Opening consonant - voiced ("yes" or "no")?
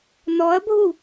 yes